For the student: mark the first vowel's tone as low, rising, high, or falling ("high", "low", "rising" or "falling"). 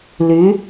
rising